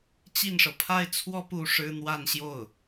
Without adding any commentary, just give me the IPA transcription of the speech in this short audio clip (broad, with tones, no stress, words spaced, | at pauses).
t͡ɕi˥˩nʂɤ˩ pʰa˥˩ɪ̯t͡sʰwɔ˥ pu˥˩ʂɻ̩˥ n̪wa˥˧nɕjo˥˩ʊ̯